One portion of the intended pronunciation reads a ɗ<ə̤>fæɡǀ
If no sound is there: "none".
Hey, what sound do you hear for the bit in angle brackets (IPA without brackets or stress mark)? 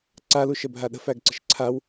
ə̤